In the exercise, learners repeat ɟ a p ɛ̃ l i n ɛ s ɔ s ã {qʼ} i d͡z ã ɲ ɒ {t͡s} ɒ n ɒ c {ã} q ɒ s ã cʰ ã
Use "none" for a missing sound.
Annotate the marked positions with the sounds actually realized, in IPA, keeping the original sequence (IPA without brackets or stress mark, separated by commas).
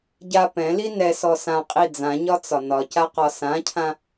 qʼ, t͡s, a